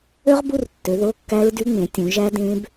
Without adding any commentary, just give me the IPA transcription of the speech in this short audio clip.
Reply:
ø˦˥ʁbu˧˥˧rtːø˨˦ ðo˧˥˧kːæ˦˥ɹdy˦˥ŋ͡mẽ˨˦ tʲũ˨˦ʒæ˦˥ dẽ˦˥b

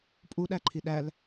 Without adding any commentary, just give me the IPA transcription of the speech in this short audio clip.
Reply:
pʼuɗæ ǃʰiɗæl

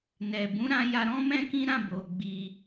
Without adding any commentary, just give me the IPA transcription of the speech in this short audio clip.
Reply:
nɛ˨bũ˨˦ɾã˧ ja˧ɾɔ̃˦mɛ̃˦kĩ˦ ɾã˦˨bo˨ ɡ͡bi˧

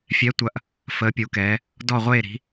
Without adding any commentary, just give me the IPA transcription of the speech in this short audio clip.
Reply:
fʲɛ˨˥tʷɐ˨˥ʔ | fəː˨˥pʲu˨˥kɛː˨˥ | dɔ˥˨ʁʷeː˥˨ɾi̤˨˥

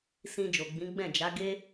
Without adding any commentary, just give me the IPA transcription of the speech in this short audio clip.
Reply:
sĩ˧ d͡ʒo˨ɡ͡bĩ˨˦ ɡ͡bɛ̃˦˨d͡ʒa˨˦ ɡe˦

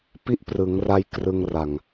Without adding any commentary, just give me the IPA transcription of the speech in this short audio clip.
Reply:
pi˦˥ʔprɯ˩˦ŋra˧j krɯ˧ŋra˨˩ŋ

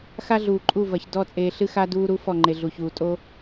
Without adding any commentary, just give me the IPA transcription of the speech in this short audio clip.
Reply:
xa˦ɮuː˨ǃʼu˦˨ vɐ˨ç dɔ˦˨t͡sʼeː˨ ɬɨ˦ xa˦duː˦ɾu˦ fɔ˦˨ŋ͡ǃe˨ ɮu˨çuː˨ tʼo˦

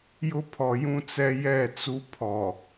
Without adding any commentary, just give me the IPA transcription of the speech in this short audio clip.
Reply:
jʊ˦pʰɔ˨jũ˦t͡sɛ˦ jɛ˦˨t͡su˦ pʰɔ˨

